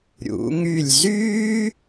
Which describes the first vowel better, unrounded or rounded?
rounded